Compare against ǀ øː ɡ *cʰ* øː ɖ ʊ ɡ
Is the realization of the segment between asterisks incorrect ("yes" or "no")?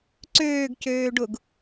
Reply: yes